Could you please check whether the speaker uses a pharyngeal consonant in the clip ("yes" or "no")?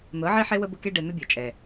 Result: yes